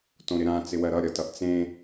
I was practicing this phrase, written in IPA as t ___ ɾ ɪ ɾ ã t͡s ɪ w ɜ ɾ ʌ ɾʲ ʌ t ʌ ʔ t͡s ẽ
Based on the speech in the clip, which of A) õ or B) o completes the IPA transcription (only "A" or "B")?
A